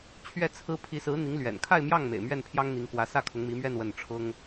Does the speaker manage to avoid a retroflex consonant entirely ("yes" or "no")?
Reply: no